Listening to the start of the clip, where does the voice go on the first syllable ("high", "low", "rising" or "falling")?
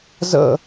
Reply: falling